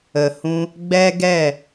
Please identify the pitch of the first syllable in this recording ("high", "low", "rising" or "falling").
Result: low